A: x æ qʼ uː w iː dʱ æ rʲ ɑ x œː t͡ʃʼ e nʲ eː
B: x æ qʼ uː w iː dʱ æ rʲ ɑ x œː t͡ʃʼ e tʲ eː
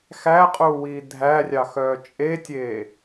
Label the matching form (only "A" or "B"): B